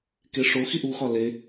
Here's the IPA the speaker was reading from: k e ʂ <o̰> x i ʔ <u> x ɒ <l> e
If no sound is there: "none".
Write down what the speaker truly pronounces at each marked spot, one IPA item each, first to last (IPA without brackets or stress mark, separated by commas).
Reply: o, u, l